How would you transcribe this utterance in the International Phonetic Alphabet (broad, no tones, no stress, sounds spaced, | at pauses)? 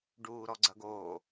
ɖ uː ɾ ɔ ɡ͡ǀ ɐ ɡ oː